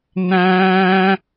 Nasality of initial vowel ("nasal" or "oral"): nasal